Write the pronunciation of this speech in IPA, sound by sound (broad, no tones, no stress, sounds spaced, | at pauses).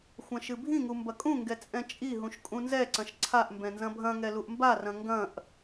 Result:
xʷ ɐ̃ ʃ ɨ bʱ ĩ ŋ u m b ɐ kʼ ũ ŋ ɡ ɛ t͡sʼ ɛ̃ t͡ʃʼ i ɦ ũ ʃ kʼ ũ n z ɛ ǀ ɐ̃ ʃ ǀʰ a ʔ m b ɛ̃ n z ɐ̃ bʱ ɐ̃ ŋ ɛ l u ʔ m b a r ɐ̃ ŋ ɡ ɐ̃ ʔ